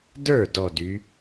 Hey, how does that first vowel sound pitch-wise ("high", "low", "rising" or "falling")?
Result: falling